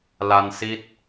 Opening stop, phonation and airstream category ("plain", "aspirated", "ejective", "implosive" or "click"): plain